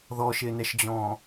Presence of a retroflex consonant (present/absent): absent